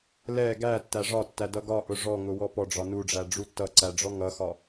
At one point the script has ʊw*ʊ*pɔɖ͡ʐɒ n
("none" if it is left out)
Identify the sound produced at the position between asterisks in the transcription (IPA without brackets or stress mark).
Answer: ɔ